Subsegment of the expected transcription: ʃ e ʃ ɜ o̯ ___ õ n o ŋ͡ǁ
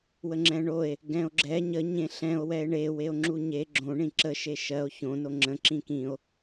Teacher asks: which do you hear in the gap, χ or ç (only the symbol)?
ç